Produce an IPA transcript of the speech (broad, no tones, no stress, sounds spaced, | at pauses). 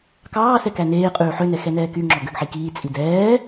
k ɑː s ɛ k æ n eː qʼ ʉː ħ ø n ɛ x ɛ n ɛː k y ŋ͡ǁ ɔ ɡ ø ɡ ħ i k iː t͡sʼ i d ɛː